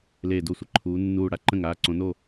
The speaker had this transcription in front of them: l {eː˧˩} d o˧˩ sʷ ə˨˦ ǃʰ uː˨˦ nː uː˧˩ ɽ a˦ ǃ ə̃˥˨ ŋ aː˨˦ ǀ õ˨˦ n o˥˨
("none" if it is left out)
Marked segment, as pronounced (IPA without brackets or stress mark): eː˧˩